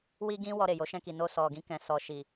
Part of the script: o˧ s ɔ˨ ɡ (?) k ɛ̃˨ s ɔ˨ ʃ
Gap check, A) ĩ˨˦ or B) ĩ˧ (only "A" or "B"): B